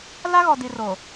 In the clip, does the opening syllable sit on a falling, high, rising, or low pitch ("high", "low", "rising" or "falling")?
high